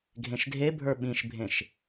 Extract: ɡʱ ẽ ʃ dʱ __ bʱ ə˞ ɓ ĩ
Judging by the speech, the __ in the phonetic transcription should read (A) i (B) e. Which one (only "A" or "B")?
B